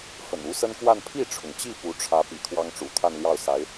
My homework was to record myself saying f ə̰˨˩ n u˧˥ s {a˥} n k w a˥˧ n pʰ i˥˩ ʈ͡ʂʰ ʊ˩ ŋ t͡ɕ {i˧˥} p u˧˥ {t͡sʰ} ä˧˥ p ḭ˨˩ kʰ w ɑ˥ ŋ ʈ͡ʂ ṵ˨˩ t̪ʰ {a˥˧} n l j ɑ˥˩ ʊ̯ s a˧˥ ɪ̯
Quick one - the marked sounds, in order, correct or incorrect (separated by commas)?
incorrect, incorrect, incorrect, correct